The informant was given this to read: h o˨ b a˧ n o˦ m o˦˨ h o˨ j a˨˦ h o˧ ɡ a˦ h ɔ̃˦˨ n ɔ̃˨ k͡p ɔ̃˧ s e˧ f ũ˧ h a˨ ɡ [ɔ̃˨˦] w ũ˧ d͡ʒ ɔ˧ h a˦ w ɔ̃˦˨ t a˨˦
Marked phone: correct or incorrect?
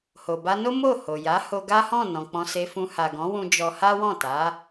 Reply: correct